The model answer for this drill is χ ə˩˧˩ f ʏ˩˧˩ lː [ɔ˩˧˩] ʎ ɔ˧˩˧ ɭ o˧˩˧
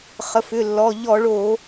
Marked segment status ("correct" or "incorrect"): correct